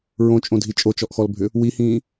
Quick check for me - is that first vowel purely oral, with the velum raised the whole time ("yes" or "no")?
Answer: no